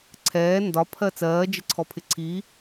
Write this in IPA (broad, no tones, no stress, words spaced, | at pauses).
ǀʰɛː ndɒpʰɜ t͡sɜːd͡ʒɪǀʰɔpʰɪ ǀi